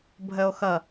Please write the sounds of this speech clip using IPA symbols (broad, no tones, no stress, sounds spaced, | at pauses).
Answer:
bʱ ə o̯ x ʌ